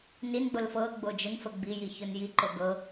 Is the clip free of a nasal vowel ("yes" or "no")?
yes